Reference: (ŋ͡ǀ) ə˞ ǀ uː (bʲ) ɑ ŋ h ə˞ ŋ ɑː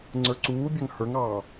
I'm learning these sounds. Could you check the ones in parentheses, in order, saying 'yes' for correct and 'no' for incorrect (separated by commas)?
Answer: yes, yes